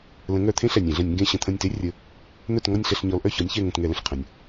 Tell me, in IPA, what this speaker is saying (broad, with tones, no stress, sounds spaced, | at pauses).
l ə̃˨˦ ŋ œ˧˩˧ t̪ʰ ẽ˥ ɬ ɛ˩ nʲ ẽ˧˩˧ ɮ ə̃˧˩˧ nʲ ŋ ɡ ẽ˦˨ ɕ ə̃˦˨ t̪ʰ ə̃˦˨ nʲ t e˥ rʲ ə˨˦ | n̪ œ˦˨ t ŋ ɔ˦˨ nʲ ɬ ɛ˦˨ ɬ ɲ ɔ˨˦ l ʔ œ˦˨ ç ɔ˨˦ nʲ ç ɛ˦˨ ŋ ə̃˦˨ t ŋ ɛ˧˩˧ l ə̃˩ ɬ qʰ ə̃˩ nʲ